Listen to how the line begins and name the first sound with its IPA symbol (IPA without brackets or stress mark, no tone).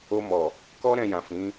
o